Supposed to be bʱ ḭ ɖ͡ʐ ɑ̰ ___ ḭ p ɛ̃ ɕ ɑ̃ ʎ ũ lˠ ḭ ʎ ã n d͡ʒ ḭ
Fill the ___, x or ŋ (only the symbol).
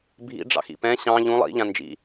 x